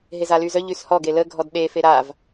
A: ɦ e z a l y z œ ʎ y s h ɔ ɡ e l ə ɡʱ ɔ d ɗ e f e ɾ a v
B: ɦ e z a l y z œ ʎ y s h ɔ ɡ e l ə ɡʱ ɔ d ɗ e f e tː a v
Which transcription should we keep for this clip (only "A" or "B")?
A